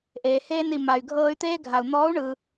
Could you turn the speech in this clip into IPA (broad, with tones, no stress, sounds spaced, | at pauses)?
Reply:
ʔ eː˩ h eː˧ n i˩ m a˩ y̯ ɡʱ ɤː˧ y̯ t̪ eː˥ ɡʱ a˩ u̯ n̪ ɔː˧˥ u̯ ɳ ɯ˩